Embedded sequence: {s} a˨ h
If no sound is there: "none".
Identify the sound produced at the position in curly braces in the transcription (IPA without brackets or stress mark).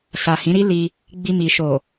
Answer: s